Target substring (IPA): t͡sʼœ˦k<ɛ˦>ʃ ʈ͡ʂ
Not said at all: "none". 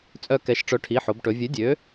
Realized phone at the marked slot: ɛ˨˥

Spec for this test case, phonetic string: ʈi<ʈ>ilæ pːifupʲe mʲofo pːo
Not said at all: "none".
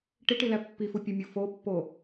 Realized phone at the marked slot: ʈ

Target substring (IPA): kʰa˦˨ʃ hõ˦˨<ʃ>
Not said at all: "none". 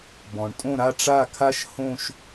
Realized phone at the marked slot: ʃ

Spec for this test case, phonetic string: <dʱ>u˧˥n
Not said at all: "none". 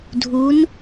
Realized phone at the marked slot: dʱ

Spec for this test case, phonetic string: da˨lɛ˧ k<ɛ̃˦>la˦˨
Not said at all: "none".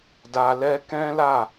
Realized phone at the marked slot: ɛ̃˦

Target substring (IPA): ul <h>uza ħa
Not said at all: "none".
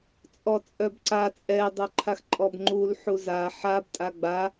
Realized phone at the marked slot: ħ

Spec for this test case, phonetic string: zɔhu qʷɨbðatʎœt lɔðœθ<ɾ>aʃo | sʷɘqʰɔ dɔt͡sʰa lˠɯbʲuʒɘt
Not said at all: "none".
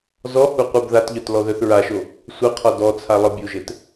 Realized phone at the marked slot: ɹ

